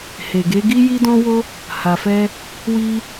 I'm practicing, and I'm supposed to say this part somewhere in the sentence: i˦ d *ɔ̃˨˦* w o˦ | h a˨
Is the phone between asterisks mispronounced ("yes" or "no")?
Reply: yes